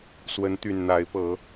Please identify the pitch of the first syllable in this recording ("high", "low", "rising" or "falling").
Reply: rising